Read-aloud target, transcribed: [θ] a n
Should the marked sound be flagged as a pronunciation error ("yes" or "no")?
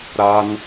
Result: yes